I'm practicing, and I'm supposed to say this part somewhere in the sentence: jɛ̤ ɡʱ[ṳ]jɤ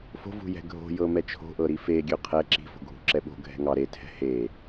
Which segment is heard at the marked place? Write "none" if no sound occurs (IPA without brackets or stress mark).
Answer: o̤